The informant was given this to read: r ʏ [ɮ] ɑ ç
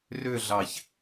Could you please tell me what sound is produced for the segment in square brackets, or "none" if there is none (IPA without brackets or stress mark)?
ɮ